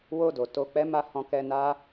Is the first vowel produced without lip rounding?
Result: no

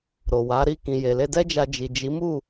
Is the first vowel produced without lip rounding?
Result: no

